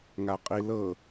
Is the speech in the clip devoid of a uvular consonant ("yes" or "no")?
no